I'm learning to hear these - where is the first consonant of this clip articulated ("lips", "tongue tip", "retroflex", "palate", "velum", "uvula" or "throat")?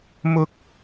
lips